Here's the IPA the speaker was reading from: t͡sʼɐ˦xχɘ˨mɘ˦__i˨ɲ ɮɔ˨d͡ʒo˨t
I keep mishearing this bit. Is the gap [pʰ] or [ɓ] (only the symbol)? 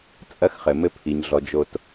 pʰ